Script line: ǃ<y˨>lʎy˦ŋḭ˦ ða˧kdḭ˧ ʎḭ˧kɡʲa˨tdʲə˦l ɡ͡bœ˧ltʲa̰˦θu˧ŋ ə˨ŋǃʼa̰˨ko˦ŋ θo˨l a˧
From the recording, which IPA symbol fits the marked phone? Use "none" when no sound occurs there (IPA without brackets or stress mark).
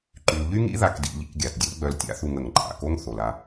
y˨